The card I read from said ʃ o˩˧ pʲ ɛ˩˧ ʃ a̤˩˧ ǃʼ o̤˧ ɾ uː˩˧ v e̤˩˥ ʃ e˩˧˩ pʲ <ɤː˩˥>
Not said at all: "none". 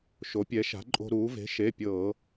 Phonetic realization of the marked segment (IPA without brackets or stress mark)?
ɤː˧˩˧